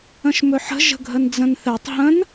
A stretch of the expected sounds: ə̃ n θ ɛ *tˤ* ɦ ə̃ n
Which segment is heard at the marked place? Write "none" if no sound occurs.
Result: tˤ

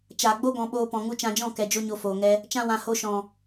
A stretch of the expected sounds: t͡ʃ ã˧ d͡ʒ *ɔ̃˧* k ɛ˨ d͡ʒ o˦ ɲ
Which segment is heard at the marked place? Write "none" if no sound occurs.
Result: ɔ̃˦˨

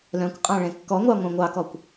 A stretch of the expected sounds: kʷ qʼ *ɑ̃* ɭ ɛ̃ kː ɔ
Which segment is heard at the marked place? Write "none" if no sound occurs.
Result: ɑ̃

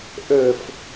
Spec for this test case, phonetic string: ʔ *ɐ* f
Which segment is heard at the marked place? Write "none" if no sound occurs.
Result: ə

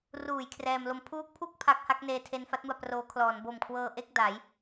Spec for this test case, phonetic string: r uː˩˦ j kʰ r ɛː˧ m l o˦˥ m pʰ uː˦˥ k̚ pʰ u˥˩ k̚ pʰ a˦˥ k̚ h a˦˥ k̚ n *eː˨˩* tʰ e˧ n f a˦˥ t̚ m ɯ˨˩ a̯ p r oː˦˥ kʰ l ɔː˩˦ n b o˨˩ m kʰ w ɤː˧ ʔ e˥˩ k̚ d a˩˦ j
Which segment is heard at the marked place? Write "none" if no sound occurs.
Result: eː˧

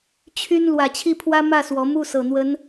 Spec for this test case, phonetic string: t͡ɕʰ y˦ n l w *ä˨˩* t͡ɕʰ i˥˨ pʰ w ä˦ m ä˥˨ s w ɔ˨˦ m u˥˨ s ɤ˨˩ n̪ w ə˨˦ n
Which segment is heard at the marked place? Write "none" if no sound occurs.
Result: ä˨˩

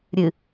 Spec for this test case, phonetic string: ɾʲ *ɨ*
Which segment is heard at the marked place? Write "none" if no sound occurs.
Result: ɨ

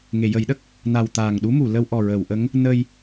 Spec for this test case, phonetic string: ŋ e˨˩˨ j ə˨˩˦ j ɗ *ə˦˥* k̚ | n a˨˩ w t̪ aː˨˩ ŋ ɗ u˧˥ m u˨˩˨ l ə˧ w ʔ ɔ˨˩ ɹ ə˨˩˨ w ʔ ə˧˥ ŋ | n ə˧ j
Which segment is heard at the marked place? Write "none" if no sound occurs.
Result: ə˦˥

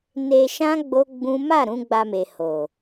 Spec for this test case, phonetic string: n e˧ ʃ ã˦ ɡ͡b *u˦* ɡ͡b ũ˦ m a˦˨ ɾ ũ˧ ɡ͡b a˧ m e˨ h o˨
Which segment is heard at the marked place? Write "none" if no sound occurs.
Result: o˦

